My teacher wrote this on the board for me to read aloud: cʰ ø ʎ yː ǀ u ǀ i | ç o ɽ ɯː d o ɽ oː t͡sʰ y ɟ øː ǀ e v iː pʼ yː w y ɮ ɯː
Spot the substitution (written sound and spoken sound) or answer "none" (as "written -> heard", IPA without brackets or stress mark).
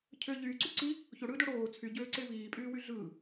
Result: none